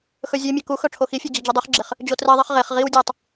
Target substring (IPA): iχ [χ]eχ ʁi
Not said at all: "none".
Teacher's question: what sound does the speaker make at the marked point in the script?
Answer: ʁ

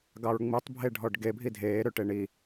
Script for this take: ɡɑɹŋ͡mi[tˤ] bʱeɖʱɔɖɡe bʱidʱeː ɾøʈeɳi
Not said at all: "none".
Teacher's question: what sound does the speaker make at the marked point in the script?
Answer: tˤ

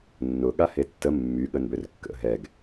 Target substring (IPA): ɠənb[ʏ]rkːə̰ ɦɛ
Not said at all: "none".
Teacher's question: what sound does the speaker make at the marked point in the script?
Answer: ʏ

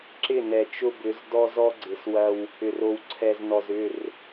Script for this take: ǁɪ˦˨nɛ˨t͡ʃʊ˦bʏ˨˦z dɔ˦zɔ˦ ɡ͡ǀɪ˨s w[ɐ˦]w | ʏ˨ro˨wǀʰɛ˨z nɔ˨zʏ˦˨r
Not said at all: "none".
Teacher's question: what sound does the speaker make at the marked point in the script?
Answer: ɐ˦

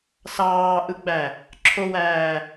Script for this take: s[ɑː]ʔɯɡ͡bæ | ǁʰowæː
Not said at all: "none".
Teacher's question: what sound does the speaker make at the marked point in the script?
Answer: ɑː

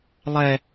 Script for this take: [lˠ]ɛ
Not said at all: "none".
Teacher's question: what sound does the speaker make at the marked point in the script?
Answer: lˠ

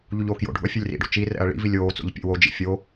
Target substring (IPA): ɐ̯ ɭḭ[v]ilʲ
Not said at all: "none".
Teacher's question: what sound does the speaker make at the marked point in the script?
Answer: v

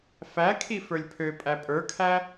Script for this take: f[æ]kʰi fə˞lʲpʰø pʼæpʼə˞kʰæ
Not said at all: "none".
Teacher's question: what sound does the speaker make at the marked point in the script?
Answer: æ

